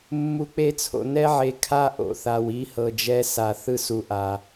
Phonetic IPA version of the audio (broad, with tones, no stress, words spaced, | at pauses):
mːu˨k͡pe˦t͡sʰo̰˨ nɛ˦ʕe˨kʰa˦ ʔo̰˨θa˨w i˦hɤ˨d͡ʒɛ˦ sa˨θɯ˦su˨ ʔa˨